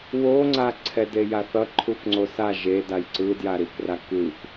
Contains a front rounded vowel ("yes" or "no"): no